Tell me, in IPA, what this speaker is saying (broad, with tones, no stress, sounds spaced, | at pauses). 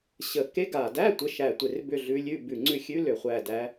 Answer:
ɕ ə˨˩ k e˧˥ ɡ a˨˩ d æ˧˥˧ tʷ ə˧˥˧ ʃ æ˦˨ tʷ e˦˨ r b ʏ˦˨ ɮ ʉ˧˥ lʲ ʉ˧˥˧ b ʉ˨˩ ŋ͡ǀ ʉ˦˨ xʲ ʉ˧˥˧ l ʏ˨˩ χʷ æ˦˨ d æ˧˥